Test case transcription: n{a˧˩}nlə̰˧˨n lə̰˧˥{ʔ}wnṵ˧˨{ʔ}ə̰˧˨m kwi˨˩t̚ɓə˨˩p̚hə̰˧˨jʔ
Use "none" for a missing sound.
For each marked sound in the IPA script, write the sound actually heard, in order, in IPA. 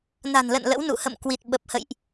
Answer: a̤˨˩, none, h

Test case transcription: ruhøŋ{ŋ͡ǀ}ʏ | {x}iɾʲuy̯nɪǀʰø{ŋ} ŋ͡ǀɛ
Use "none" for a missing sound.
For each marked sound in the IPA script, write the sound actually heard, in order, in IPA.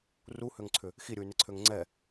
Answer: ǀʰ, x, ŋ

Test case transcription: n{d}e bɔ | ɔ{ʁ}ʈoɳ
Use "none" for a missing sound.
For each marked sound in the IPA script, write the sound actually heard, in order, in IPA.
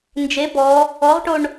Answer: d͡ʒ, ʁ

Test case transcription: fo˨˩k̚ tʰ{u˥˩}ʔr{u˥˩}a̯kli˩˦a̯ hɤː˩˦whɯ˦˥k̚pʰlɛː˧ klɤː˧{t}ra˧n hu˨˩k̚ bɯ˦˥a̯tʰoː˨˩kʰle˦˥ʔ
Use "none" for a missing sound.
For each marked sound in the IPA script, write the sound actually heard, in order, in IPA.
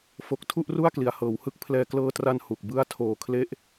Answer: u˥˩, u˥˩, t

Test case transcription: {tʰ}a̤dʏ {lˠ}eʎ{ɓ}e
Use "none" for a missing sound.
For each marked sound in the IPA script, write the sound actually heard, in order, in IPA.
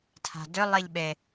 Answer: tʰ, lˠ, ɓ

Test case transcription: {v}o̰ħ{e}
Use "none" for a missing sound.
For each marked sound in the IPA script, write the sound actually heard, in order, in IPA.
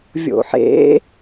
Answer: vʲ, ḛ

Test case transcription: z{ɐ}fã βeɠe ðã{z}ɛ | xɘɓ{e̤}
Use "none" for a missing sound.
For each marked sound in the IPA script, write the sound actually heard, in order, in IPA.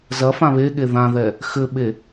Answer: ɐ, ð, e

